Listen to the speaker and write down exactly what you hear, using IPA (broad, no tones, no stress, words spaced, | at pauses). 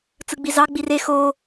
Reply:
t͡sɯɡ͡bizɑ ɡ͡bire xo